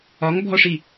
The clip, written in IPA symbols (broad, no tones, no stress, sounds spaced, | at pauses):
ɒ ŋ bʱ ɔ ʂ i